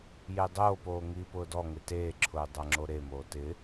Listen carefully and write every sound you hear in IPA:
j e dˤ oː p oː ŋ iː p ʊː d ɔ ŋ ɪ t eː ǁʰ ʊː dˤ a ŋ͡ǁ o ɾ e m oː t ɪ

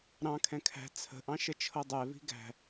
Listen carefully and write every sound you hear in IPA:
ɾ ɑ̃ kʰ ɛ̃ kʰ æ̤ t͡sʰ ə̤ ʔ ɑ̃ ʃ ə t͡ʃʰ ɤ dˤ ɛ v i̤ ɡ æ̤

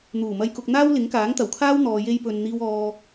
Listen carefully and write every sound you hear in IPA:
n̪ uː˨˩ m ɐ˧ j k ʊ˧ k̚ n̪ aː˥ w l ɪ˨˥ ŋ k aː˨˥ ŋ t̪ ɐ˨˩ w kʰ aː˥ w n̪ ɔː˨ j e˧ j p ɵ˨ n n̪ iː˥ w ɔː˥

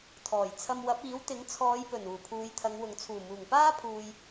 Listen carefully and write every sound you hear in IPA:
t̪ʰ ɔː˨˩ j t͡sʰ ɐ˧ m w ɐ˨˥ p̚ iː˨˥ w t̪ ɪ˨˥ ŋ t͡sʰ ɔː˨˧ j p ɵ˨˩ n uː˨˩ pʰ uː˨˧ j t̪ʰ ɐ˨˧ ŋ w ʊ˨ ŋ t͡sʰ uː˨˩ m uː˨˩ ŋ p aː˥ pʰ uː˨ j

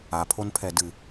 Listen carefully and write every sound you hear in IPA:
a pʰ o n pʰ ɛ d ɨ

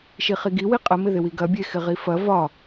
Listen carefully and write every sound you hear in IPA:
ʃ i χ i ɡ i w i qʼ ə m ɪ ð ɪ w i ɡ ɐ bʲ e x ɪ ʁ i f ɐ v ɒ

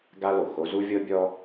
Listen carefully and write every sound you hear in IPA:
ɡ a˥ l o˩ x o˥ z u˥ vʲ ɤ˥ bʲ ɔ˥

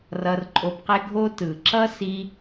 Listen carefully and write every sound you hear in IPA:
r ʌ˧ r ǃʼ o˧ b q e˦ ɡʱ o˦ t ɯ˨ ǁ ʌ˦ s i˧

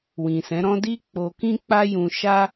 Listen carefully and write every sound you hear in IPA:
w ĩ˨ s ɛ̃˨˦ ɾ ɔ̃˦ d i˦ k͡p o˧ k ĩ˦ k͡p a˦ j ũ˧ ʃ a˦

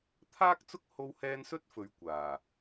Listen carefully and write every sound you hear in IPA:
t̪ʰ aː˥ k̚ t͡s ʊ˥ k̚ h o˧ w h ɛː˧ n s ɵ˥ t̚ f ɵ˨˧ ɥ kʷ aː˨˩

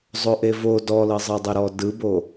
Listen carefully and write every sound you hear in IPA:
zˤ o ʔ e v o d ɔ l ɤ zˤ ɤ dˤ ɛ ɾ ɔ d ɯ b o

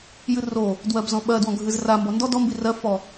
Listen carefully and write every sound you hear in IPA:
j ɨ r o | d w ɜ b z ɔ̃ ɓ ɜ d w ɔ̃ ɡʱ ɨ z r a m b ɔ n d ɔ d ɔ m b i r ɜ f ɔ

